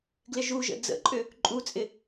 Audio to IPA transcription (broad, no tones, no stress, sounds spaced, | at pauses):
ɡ l ɪ ʒ u ʒ ə̰ d͡z ə̰ ǃʼ ʏ | ǃʼ u t͡sʼ ɪ